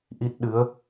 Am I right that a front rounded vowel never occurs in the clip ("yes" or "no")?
yes